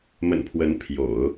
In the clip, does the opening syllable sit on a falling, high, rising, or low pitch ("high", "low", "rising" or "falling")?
low